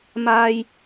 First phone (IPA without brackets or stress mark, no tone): m